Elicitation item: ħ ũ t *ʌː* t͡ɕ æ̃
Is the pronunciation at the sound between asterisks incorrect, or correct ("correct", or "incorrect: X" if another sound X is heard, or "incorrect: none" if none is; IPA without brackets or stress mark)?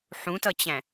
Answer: incorrect: ʌ